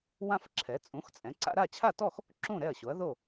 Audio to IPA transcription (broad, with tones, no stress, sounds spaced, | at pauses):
w ã˥˧ f ǁʰ ɛ˩˥ t͡sʼ ũ˩˥ x t͡sʼ ɛ̃˩˥ ǀ a̰˥˧ ɾ a˥˩ t͡ɕʰ a˥˩ t ɔ˥˩ x | ǁ ũ˥˩ ɾ ɛ˥˩ ɐ̯ ɕ o˩˥ ɐ̯ ð o˥˩